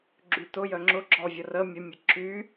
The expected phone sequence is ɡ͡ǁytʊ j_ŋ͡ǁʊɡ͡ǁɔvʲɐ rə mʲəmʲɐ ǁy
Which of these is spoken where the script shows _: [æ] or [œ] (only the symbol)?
œ